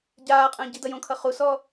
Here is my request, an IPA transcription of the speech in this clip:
ɟ aː qʼ ə̃ː ɟ i d ʌ j õ kʰ ʌ χ u s ɔ

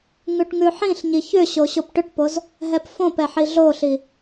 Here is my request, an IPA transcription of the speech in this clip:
ŋ ʉ ʈ ŋ ʉ ħ ĩ ɬ ɲ i ç ʏ ɕ o ɕ o p ʈ ʏ ʈ p o z | ɦ ɛ p f õ p ɛ ħ i ɮ o ɬ i

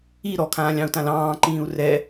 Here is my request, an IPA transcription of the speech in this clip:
i ɾ ɔ kʰ ãː lʲ ɑ̃ u̯ t ã l ɑ̃ː ǃ ĩː u̯ r ɛ

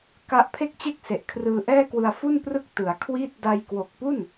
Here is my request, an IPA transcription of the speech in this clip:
k a˦˥ ʔ pʰ e˥˩ k̚ t͡ɕ e˥˩ k̚ s e˨˩ ʔ kʰ r ɯː˧ ʔ ɛː˥˩ k w ɯ˧ a̯ f u˥˩ n p r ɯ˥˩ k̚ t ɯ˨˩ a̯ kʰ w iː˥˩ t̚ d a˧ j k w o˨˩ k̚ p u˥˩ n

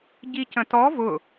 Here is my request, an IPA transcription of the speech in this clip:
ɟ i c ə̃ t ɔ v ʊ

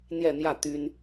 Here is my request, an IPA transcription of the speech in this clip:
n̪ j ɛ˥˧ n̪ j ä˥˩ t̪ y˥ n

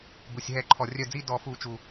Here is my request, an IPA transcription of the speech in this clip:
b u˩ sʲ ɦ ɛ˧˩˧ ǃʰ ɔ˩ rʲ œ˧˩ d͡z i˥˧ d ɔ˧˩˧ f u˧˩˧ t͡ʃ u˩

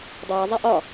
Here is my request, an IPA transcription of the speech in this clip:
dˤ iː zˤ ɛ ʔ ɒ

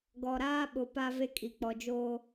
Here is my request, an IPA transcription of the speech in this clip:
ɡ ɔ˨ ɾ aː˦ ɓ ʊ˨ p a˦ v e˦ kʼ i˨ k͡p ɔ˨ d͡ʒ oː˦

